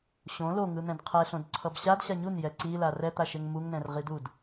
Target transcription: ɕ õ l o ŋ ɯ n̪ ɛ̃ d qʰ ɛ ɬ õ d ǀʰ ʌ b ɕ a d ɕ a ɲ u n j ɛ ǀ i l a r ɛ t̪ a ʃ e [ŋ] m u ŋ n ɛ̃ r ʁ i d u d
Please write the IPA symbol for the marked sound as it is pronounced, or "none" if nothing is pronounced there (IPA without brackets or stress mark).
ŋ